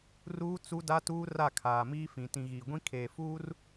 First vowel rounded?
yes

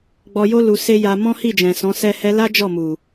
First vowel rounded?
yes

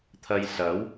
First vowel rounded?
no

